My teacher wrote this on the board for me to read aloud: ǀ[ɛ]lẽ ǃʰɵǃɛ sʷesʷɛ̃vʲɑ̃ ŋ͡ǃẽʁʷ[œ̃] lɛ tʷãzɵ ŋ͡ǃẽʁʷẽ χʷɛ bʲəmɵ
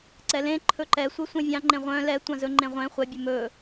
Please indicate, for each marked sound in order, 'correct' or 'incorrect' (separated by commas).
correct, correct